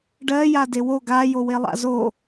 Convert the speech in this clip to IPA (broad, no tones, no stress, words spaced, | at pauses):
ɖɜja dewo ɡajo welˠa̰zo